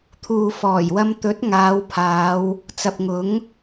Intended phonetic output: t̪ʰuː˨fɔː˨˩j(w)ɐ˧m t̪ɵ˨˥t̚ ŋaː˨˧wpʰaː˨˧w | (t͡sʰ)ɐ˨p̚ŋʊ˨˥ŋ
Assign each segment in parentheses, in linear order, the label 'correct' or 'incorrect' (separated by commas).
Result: correct, incorrect